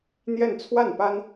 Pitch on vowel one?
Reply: falling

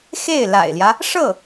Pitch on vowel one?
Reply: falling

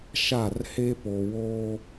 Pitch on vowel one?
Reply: falling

